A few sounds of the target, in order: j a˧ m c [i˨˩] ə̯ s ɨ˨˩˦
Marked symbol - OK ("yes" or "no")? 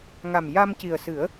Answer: yes